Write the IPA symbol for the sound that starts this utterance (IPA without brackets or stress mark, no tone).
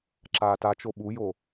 ǁ